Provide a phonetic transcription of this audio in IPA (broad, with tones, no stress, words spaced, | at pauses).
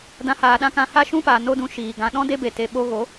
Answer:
dã˧haː˨ɗã˦kã˧ ha˦ʃũ˦paː˨ no˦dũ˧ ʃiː˨ ɡã˨ɗɔ̃˦ de˦be˨ te˨ɓo˧ ɣo˨˦